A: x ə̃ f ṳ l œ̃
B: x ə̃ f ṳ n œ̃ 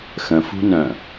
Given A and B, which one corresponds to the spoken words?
B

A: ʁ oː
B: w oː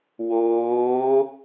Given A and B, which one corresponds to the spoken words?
B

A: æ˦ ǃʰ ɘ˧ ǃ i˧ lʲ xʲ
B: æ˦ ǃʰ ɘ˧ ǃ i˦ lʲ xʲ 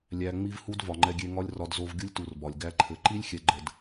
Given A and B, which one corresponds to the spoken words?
B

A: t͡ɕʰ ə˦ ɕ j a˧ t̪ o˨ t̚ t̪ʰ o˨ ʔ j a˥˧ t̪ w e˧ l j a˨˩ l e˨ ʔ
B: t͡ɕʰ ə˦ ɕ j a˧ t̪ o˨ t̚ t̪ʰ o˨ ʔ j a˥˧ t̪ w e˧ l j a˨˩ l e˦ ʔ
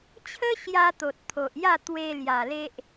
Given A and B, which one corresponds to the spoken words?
B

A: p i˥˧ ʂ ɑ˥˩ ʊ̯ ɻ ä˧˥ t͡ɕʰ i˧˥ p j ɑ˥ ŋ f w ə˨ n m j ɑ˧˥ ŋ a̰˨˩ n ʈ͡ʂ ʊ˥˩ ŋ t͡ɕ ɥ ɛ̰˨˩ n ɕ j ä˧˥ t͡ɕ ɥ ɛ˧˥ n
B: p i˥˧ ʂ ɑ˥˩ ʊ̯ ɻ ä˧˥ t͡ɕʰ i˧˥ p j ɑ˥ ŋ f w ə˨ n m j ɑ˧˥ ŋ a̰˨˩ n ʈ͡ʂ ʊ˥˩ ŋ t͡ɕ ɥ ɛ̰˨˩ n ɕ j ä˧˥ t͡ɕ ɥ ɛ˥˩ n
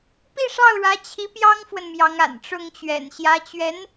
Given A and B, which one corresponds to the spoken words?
A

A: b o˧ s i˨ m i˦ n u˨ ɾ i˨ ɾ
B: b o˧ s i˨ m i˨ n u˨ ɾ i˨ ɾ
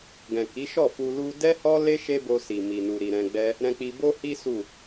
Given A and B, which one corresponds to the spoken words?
B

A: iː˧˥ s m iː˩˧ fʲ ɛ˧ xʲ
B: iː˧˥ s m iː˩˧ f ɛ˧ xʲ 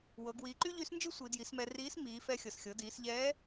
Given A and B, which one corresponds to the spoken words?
B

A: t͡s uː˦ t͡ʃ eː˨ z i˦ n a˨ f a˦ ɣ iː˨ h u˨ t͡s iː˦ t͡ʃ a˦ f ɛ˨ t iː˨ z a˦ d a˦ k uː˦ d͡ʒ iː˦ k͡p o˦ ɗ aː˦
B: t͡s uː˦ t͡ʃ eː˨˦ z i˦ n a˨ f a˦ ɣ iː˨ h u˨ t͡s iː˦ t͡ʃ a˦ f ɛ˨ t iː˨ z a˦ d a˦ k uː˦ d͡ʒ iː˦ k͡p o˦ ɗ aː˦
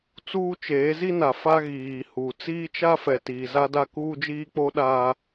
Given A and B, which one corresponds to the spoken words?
B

